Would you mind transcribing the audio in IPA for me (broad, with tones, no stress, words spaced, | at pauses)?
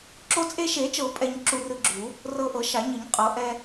ǁo˧t͡sʼe˧ʃe˨˩˦t͡ʃɤ˨˩˦ pʼɛ˧ɲ ǁu˧rɯ˧ɡ͡ǁu˨˩˦ | rɤ˧ʔɤ˨˩˦ʃa˨˩˦ ɲɯ˨˩˦ɲ qʼɤ˨˩˦ ʔɛ˧